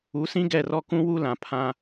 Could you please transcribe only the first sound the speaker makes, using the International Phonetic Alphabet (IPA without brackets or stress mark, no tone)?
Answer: u